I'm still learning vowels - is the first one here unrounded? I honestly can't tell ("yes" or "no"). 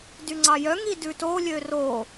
no